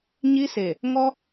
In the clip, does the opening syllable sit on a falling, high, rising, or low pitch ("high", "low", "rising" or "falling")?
high